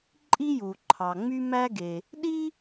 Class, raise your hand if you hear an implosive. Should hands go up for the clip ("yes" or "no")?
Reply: yes